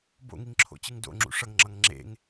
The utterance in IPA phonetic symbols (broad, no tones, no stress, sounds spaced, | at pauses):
b o̰ ŋ i ŋ ǁʰ o̰ t͡ɕ ɯ ŋ d o̰ ŋ͡ǁ ṵ ʂ ʌ ŋ ŋ͡ǁ ʌ ŋ ŋ͡ǁ ḛ ŋ